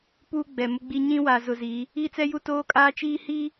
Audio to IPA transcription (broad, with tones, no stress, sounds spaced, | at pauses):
p uː˦ ɡ͡b ɛ˨ m ʊ˦ ɡ͡b i˦ ɲ ĩ˦ w a˨ z ʊ˨ z i˨˦ | i˦ t͡s ɛ˦ j u˦ t oː˦ kʼ aː˦ t͡ʃ iː˦ h i˦